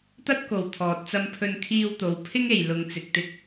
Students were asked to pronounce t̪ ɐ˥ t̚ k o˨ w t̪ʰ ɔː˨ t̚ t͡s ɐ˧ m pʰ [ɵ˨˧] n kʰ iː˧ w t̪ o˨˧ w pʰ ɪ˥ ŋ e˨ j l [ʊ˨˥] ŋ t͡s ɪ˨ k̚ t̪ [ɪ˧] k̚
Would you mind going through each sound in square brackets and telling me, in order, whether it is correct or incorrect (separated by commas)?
incorrect, incorrect, correct